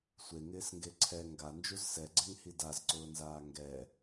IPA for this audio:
sʷ e ŋ ɪː s ŋ ɡ e ǀʰ ɛ ŋ ɡ a n d͡ʒ u z s ɛ ɡ͡ǀ ɛ ŋ h i d a z ǀ ʊː n z aː ŋ ɡ ɛ

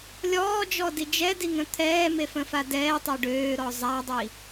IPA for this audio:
lʲ ɔː d͡ʒ ɔ d i d͡ʒ ɛ d i ŋ ə̃ t̪ʰ ɛː m e f ə̃ f a d ɛː tˤ ɛ ɖ øː ɾ ɔ zˤ a dˤ i

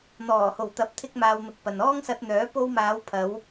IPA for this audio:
n̪ ɔː˨˩ h o˨˩ w t̪ ɐ˨˥ p̚ t̪ʰ ɪ˥ k̚ m aː˧ w n̪ ʊ˧ k̚ p ɐ˨ n ɔː˥ ŋ s ɐ˧ t̚ n̪ œː˨˥ p o˧ w m aː˨˧ w pʰ ɐ˨˧ w

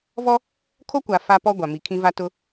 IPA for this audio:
v ɔ˦ | kʰ o˦ kʷ a˨ f a˦ p ɔ˦ ɡʷ a˨ m i˨ kʰ ĩ˦ v a˦ t ʊ˦

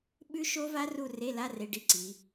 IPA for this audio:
ɓ ʉ˦˥ ʃ o˦˥ v a˦˥ r u˥˨ r e˧˥˧ l a˧˥˧ r e˧˥˧ ɖ i˦˥ ǀ i˩˧

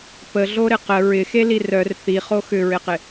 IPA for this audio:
p ə ɮ o ɾ ɪ q ə ɹ ɪ x e l i r œ r θ i χ o x ʏ ɹ ɪ q ɪ

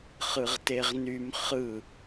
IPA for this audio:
χ ɯ ʁ t e ʁ n y m χ ɯ

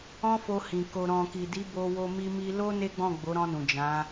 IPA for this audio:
ɔ̃˦ f o˧ h ĩ˨ k o˨ ɾ ɔ̃˨ k i˨ d i˨˦ b o˧ w o˧ m i˧ m i˧ l o˦ n e˦ ɡ͡b ɔ̃˦˨ ɡ͡b o˨˦ ɾ ɔ̃˧ n ũ˨ d͡ʒ ã˨˦

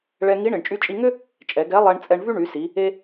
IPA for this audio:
ɭ ɛ˧ ŋ i˧˥ ɳ ɪ˩ ɳ t͡ʃʼ y˧ t͡ʃʼ i˧ ŋ ʏ˥ | t͡ʃʼ ɛ˩˧ ɡ ɛ˧˥ lˠ ɛ˧ ɳ t͡sʼ ɛ˧ ɳ v y˥ ɳ y˩˧ s i˩˧ | e˥

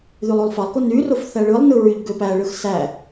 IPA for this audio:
ð y lˠ u lˠ f ɑ lˠ k o n y r o f θ æ ɭ ɯ lˠ n ɯ ɹ y ʎ ɡ ø p æ ɭ ɯ x s æ

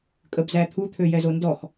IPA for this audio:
kʼ ə b z æ t̪ʰ u t̪ʰ ø j ɛ z o n d ɔ x

